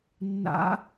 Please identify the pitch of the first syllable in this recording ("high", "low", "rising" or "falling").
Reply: rising